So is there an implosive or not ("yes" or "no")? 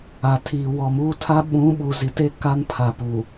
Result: yes